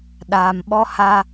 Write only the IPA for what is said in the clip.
ɗ aː˨ m ɓ ɔ˦ h a˦

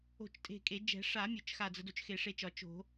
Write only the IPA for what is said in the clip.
o̤˧˩ t͡ʃ tʼ e̤˧˩ kʼ e˨˩˦ d͡ʒ ɛ̤˨˩˦ ʂ a˨˩˦ mʲ ʊ˨˩˦ t͡ʃ x a˧˩ d͡z ə˨˩˦ d o˨˩˦ t͡ʃ x e˨˩˦ ʂ e˧˩ t͡ʃ ɒ˨˩˦ t͡ʃ o̤˨˩˦

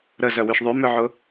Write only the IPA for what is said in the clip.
ɾ ə z œ w y ʃ ðˤ y m ʏ ʕ ʊ

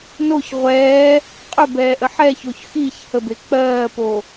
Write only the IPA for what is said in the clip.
n o ç ʁʷ ɛː | qʼ ɵ b ɛː ʔ ə ħ ɛ ç o ç x i ç h ə b e k͡p ɜː p o

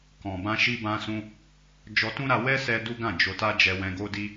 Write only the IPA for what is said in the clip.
k ɔ̃˨ b ã˧ ʃ i˧ b ã˧ s ũ˧ | d͡ʒ ɔ˧ t ũ˦ ɾ a˧ w ɛ˦ s ɛ˧ d u˦ ɡ ã˦˨ d͡ʒ o˧ t a˦ d͡ʒ ɛ˧ w ɛ̃˧ ɡ o˦ d i˦

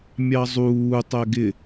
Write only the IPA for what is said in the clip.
mʲ ɑ zˤ uː tˤ ɛ ɡ ɪ

